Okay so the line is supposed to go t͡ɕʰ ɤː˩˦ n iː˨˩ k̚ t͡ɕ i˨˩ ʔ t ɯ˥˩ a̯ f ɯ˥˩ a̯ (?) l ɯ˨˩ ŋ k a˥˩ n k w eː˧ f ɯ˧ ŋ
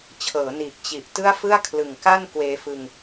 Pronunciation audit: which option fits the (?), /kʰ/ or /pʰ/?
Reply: kʰ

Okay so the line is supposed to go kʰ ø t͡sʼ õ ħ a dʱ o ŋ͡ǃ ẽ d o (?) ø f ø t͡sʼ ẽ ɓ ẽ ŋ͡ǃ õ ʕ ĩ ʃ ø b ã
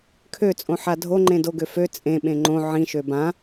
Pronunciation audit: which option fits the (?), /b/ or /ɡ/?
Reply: ɡ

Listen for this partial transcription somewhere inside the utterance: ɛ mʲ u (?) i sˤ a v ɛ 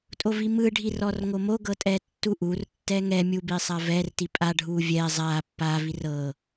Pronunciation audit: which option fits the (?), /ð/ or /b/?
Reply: b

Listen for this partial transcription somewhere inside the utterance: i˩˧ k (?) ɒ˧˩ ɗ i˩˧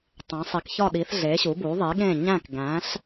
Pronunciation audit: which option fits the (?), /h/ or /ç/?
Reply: ç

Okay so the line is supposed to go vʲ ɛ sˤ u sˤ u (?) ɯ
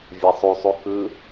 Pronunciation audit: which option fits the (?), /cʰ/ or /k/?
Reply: k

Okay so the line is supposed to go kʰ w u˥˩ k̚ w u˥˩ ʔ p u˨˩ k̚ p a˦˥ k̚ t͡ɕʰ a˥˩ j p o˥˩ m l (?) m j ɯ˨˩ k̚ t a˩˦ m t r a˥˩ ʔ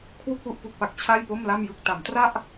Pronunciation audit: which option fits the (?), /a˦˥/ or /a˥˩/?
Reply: a˥˩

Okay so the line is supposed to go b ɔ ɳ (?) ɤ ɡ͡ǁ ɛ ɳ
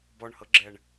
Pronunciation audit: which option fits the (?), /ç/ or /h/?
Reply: h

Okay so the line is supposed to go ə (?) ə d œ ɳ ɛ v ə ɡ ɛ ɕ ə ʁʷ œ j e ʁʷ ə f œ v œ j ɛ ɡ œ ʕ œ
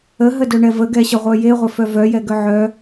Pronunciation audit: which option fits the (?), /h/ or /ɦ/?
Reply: ɦ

